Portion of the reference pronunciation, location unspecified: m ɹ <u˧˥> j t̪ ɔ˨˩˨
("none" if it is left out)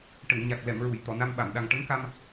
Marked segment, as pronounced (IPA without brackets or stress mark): u˨˩˨